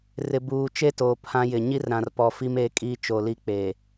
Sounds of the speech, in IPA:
r ɪ˨ b uː˨ t͡ʃ e˦ t oː˨ pʰ ã˦ j ɪ˨ ɲ i˦ r ɾ ã˨ r p ɔ˨ f i˦ m eː˦ kʼ iː˦ t͡ʃ o˨ l i˦ k͡p eː˨

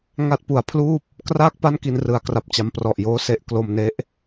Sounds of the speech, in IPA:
ŋ a˦˥ t̚ p u˩˦ a̯ pʰ l uː˥˩ p̚ | k r aː˥˩ k̚ p a˥˩ n k i˧ n r ɯ˩˦ a̯ k r a˨˩ p̚ t͡ɕ a˦˥ m p r ɔ˨˩ ʔ j oː˥˩ s e˥˩ ʔ k l o˧ m n e˦˥ ʔ

